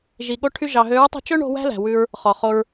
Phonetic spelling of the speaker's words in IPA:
ʒi˨ɠo˧ʈʰy˧ ʒɑ˨ɦø˨˦ɹtˤi̤˧ t͡ʃɵ˦ɳo̤˧ wæ̤˦læ̤˨wʉ˧ɹ | χɔ˨χo˧ɹ

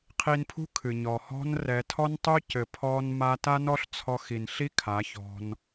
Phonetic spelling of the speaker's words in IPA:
qʰi˧npʰṳ˦ kʰɨ˨ɲɔ˨hɔ̤˦n rɛ˧ tʰɔ˦ntˤu˦cɘ˨ pʰɔ˦nma˦ ta˦nɔ˦ɬ t͡sʰɔ˧xi˨nɬi˦ kʰa˨˦çɔ̤˧n

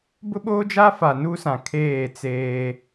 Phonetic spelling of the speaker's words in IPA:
bʊ˦ɓoː˦d͡ʒa˦fa˨ nu˦sã˨ kʰeː˦˨t͡seː˦

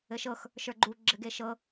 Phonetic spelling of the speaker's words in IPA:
ɘʃɤx | ʃə˞ɡ͡ǃu ɡ͡ǁɘɡeʃɤ

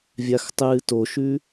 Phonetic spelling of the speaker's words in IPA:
vʲaxtˤɨːtoʃʉ

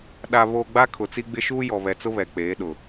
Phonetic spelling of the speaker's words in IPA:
ɗa˨βoː˨ ɡ͡ba˦kʰʊ˨t͡si˦ɡ͡bɪ˦ ʃuː˦jɔ˨βɛ˨t͡sʊ˦ βɛ˨k͡peː˨˦ɗʊ˨

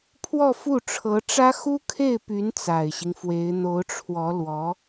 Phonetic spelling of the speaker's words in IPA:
pʰwɔ˥˧fu˥˩ ʈ͡ʂʰɤ˧˥ʈ͡ʂä˥ xu˥kʰe˥˩ɪ̯py˧˥n t͡sa˨˩ɪ̯ɕi˦ŋfwe˧˥ɪ̯ n̪o˧˥ʊ̯ʈ͡ʂʰwɔ˧˥lwɔ˧˥

